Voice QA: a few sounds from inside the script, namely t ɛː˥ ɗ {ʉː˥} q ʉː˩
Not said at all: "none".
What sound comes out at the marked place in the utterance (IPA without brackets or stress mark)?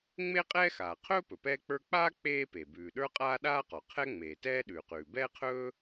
ʉː˩